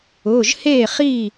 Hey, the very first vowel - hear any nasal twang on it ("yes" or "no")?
no